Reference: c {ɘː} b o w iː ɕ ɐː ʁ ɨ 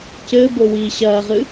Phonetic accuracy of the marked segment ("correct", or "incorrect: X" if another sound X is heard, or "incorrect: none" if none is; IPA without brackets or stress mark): correct